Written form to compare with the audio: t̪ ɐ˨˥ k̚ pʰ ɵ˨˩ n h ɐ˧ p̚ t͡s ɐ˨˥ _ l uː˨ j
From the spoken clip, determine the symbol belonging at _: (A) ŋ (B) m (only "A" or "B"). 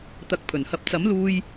B